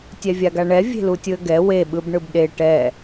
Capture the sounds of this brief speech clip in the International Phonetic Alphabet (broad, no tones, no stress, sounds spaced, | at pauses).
tʲ ɛ vʲ a ɡ a ɳ ɛ vʲ e̤ l u tʲ ɯ ə̯ ɡ ɛ w e ɓ ɯ b ɳ ɯ b ɗ e ʈ ɛ